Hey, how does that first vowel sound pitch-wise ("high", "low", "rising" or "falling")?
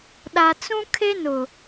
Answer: low